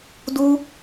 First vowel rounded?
yes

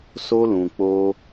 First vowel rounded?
yes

